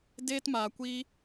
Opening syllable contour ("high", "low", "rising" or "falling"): high